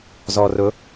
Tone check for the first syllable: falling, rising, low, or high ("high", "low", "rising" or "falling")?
low